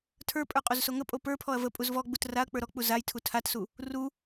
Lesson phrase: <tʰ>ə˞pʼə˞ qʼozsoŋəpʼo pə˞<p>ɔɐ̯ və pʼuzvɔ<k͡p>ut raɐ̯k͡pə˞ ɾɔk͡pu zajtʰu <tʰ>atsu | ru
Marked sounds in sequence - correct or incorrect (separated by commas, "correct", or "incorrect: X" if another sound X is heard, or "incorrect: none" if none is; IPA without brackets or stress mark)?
correct, incorrect: pʰ, incorrect: ɡ͡b, correct